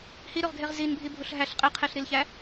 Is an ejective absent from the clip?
no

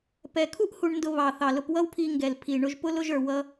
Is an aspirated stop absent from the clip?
no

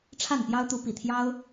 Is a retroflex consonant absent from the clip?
no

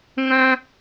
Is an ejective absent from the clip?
yes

